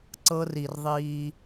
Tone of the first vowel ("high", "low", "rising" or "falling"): high